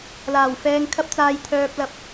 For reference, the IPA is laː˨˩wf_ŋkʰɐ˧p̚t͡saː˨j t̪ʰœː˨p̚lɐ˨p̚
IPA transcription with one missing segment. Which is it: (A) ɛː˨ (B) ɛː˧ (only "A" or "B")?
A